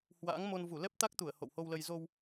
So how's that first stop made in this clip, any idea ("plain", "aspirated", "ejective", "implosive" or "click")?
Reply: plain